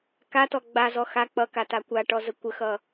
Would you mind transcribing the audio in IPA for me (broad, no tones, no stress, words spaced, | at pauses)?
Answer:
katɔ ɡ͡bazɔ xa k͡pʌkata kʷaʈɔzə kʷəxʌ